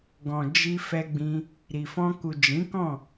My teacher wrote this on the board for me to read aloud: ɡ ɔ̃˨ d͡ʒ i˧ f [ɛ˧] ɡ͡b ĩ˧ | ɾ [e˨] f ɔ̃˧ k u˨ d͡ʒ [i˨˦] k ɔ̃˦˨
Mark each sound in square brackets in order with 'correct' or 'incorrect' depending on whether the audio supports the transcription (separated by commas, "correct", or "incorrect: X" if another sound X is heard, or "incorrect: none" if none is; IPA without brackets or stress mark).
correct, incorrect: i˨, incorrect: ĩ˨˦